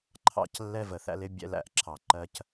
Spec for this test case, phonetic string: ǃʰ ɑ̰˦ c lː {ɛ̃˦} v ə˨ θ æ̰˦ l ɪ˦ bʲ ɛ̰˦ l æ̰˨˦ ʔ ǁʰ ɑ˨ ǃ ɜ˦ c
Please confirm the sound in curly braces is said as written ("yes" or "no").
no